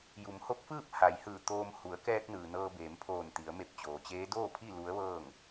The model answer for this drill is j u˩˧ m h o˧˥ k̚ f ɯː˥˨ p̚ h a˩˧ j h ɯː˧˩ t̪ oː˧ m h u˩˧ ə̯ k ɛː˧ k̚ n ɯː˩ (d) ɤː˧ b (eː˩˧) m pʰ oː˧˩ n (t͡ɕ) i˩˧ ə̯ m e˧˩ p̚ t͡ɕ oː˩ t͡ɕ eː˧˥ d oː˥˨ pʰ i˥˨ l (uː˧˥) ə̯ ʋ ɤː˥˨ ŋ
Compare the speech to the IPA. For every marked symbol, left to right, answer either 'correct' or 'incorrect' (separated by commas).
incorrect, correct, incorrect, incorrect